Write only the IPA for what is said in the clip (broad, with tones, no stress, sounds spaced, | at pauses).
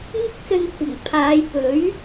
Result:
ŋ ʊ˥ k̚ s ɵ˧ n kʷʰ ɐ˨˩ ŋ pʰ aː˨˧ j p ɵ˨˥ ɥ